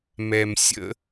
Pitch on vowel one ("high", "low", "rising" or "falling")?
low